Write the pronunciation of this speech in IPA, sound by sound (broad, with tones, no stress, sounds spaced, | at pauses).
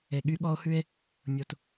e˨ ɠ y˦ ɠ ɔ˦ o̯ h ʉ˦ e̯ | mʲ o˨ t